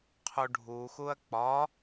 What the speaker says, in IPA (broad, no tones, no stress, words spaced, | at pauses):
qʰuɖʱuxuɐ̯ k͡pɒ